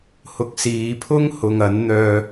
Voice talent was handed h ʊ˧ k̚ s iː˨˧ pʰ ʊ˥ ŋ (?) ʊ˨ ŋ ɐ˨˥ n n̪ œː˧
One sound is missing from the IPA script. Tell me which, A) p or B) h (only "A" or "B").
B